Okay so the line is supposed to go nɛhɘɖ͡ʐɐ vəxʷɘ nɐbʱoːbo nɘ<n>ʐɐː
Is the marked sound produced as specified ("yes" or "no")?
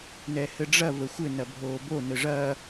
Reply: no